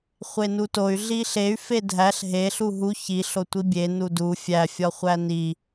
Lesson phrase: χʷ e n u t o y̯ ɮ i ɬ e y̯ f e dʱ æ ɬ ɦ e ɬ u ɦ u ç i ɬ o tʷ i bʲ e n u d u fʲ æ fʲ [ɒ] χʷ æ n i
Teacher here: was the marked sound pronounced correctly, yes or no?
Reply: yes